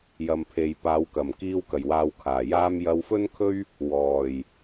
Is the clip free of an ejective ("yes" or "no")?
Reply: yes